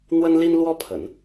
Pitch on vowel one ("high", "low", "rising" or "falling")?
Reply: high